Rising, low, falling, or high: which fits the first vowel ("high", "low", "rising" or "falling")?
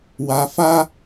low